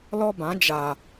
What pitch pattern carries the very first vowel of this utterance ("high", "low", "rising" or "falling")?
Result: high